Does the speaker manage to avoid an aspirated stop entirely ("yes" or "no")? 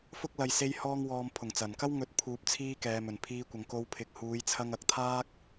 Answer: no